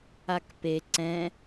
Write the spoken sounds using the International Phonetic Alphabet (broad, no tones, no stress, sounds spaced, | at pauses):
a k p e ǀ ɛ̃